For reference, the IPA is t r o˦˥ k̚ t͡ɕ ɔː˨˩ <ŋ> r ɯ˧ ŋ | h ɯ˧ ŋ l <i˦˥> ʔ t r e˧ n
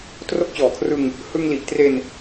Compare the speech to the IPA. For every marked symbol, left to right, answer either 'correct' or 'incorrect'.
incorrect, incorrect

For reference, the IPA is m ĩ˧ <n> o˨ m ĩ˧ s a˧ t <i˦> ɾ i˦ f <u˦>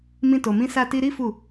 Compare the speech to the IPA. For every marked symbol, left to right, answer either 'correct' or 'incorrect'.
incorrect, incorrect, incorrect

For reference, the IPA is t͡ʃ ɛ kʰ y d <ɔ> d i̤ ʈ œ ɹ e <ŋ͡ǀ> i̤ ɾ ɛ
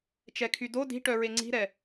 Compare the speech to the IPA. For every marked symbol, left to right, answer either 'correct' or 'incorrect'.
incorrect, correct

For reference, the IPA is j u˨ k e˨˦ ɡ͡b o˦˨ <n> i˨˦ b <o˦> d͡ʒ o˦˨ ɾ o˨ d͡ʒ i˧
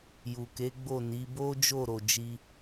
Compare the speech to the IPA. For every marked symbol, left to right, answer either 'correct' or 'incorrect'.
correct, correct

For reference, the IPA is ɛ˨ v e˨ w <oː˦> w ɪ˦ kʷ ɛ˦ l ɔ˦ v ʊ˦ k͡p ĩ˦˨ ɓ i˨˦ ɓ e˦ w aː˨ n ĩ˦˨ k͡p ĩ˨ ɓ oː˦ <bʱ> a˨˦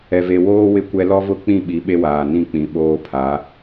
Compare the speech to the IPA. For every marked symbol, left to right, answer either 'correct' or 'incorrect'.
correct, incorrect

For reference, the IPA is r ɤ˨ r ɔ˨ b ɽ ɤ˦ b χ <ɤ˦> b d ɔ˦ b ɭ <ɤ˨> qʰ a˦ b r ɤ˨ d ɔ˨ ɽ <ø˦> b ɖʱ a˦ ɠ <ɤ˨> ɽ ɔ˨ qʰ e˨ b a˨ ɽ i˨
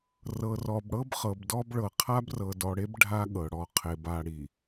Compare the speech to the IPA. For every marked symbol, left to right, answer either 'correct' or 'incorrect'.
incorrect, correct, incorrect, correct

